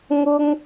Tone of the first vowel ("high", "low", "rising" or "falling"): high